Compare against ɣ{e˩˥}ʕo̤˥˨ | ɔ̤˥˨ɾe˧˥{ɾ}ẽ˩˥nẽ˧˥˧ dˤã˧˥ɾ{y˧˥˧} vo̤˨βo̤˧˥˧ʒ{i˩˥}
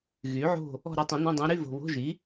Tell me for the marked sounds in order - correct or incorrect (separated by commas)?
incorrect, incorrect, correct, correct